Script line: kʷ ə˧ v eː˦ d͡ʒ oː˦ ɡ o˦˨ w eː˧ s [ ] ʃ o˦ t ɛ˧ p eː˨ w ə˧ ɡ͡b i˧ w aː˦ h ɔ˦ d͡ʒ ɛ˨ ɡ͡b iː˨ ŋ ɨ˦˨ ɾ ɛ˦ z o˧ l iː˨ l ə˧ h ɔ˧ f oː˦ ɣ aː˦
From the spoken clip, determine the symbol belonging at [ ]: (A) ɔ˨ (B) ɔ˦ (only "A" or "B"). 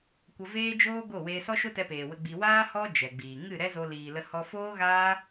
B